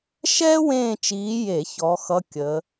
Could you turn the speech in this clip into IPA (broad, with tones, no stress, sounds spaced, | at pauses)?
ʃ ɛː˥ w ẽː˦˨ t͡ʃ iː˨˦ j e˧˩˧ ç ɔ˨˦ x ʌ˧˥˧ kʲ ə˨˦